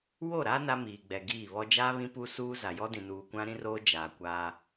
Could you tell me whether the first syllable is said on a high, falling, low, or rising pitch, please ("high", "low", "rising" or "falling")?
falling